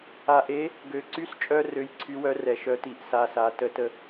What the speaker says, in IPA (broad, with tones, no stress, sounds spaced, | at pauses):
a˧ ʔ e˧˥ | ɡ ø˧ ǀ y˧˥ s t͡ʃʼ œ˧ r ø˧˥ j ǀʰ y˧˥ w œ˧˥ r ɛ˩˥ ʃ œ˧˥ t i˧ ʔ s a˧ s a˩˥ t ə˧˥ t ə˧